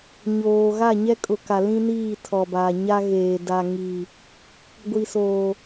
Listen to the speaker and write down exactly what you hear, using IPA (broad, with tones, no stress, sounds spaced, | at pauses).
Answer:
ɲ oː˨ ɣ a˦˨ ɲ ɛ˦ kʼ ʊ˨ k a˨ l ĩ˦ n iː˦˨ tʰ ɔ˨ b aː˨ ɲ a˦ ɣ eː˨ d a˨ ŋ i˨ | ɡʷ i˨ s oː˨